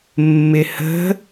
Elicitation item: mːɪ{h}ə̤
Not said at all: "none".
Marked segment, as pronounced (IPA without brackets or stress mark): h